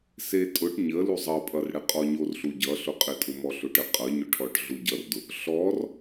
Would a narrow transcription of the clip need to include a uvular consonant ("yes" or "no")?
yes